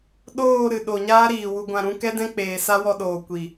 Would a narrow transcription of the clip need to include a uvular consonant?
no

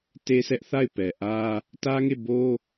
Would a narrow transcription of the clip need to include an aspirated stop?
no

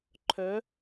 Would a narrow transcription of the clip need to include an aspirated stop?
yes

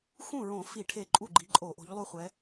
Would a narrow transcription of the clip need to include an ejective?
yes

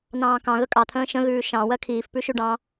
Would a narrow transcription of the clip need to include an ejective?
yes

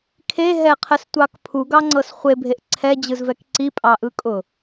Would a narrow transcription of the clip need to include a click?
yes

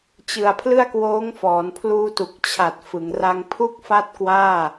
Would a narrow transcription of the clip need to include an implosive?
no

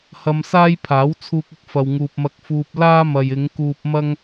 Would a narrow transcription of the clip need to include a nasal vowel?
no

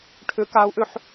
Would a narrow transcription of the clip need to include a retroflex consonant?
yes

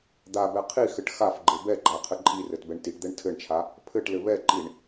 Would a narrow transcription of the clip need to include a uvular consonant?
yes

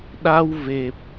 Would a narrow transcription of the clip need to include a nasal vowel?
no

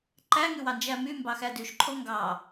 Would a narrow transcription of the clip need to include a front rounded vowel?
yes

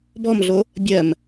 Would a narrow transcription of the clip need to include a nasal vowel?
no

